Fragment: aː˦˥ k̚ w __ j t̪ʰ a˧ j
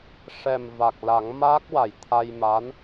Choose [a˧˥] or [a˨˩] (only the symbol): a˨˩